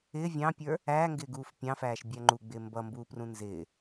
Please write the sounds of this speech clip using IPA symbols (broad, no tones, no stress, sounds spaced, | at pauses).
ɪː vʲ ɑ̃ pʲ ə˞ | æ ŋ ɡ ɪː ɡ uː f pʲ ɑ̃ f æː ʃ bʲ æ ŋ͡ǃ u ɡ͡b ɪː m b ʌ m b uː p r ũ n z ɪː